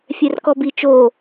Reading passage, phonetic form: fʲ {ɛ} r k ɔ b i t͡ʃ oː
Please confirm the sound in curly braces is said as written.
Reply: yes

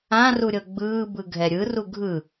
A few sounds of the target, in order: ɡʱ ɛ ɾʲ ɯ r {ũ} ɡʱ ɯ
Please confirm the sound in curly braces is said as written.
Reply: no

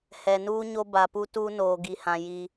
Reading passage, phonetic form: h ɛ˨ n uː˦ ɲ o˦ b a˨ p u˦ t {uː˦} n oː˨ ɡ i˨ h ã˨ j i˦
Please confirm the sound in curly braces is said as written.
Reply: yes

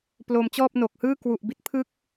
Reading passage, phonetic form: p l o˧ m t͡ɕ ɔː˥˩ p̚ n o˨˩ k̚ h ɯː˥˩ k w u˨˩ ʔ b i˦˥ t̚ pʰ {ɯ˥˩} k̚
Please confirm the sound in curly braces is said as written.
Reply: yes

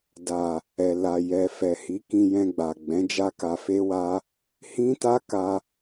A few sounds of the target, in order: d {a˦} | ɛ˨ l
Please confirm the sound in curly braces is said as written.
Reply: no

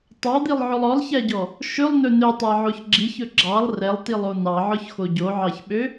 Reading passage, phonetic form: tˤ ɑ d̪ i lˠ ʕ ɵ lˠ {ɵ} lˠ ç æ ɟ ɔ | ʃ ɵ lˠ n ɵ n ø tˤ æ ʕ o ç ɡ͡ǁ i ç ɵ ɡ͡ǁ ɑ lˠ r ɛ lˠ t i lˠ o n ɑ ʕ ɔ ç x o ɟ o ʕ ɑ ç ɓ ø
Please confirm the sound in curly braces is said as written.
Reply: no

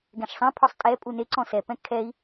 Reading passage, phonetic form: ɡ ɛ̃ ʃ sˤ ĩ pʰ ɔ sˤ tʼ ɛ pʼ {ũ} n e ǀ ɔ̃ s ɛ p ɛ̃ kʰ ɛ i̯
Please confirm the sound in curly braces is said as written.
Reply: no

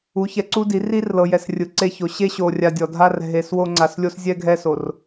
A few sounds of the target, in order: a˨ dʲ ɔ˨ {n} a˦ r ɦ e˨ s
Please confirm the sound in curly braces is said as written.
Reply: no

